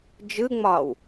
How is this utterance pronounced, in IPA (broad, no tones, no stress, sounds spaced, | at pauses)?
d͡ʒ ɯ ŋ͡m ɒː w